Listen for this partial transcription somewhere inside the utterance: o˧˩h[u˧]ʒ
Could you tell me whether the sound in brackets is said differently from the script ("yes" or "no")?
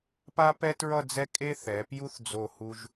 no